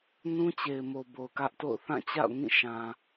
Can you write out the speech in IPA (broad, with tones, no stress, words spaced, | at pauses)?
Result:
nũ˦t͡ɕe˨ɪ̯mo˨ bo˨ʊ̯kä˦ʔto̰˦˨ʊ̯ θã˦˨t͡ɕa̰˦˨ʊ̯ ŋĩ˦˨ʃã˨